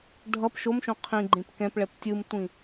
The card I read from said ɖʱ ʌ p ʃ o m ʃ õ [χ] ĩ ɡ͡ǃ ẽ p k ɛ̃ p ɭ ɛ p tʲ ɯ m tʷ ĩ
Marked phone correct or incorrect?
incorrect